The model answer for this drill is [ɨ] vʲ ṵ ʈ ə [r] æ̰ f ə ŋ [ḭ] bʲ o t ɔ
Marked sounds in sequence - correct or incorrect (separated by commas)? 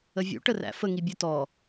incorrect, correct, incorrect